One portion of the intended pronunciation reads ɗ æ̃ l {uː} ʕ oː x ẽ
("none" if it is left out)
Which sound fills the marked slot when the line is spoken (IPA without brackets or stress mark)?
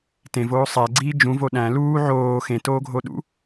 uː